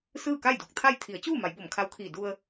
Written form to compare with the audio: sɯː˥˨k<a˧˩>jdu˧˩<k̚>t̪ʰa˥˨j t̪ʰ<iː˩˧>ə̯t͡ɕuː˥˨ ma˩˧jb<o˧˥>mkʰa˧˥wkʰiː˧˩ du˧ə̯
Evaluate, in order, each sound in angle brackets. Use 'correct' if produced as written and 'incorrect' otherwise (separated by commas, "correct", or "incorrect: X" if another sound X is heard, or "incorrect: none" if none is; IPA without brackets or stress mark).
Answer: incorrect: a˥˨, correct, incorrect: i˩˧, incorrect: o˧˩